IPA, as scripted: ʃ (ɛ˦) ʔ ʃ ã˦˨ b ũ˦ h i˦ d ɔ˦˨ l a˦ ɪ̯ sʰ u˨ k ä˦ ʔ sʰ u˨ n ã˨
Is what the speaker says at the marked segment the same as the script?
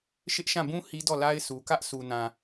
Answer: no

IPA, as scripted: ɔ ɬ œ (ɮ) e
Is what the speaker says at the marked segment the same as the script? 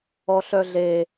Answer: yes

